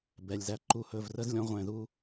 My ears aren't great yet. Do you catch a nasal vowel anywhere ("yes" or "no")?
yes